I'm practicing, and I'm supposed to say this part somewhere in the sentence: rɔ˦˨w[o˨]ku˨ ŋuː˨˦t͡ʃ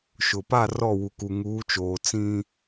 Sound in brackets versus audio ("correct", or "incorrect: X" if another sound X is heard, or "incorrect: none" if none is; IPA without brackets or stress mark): incorrect: u˨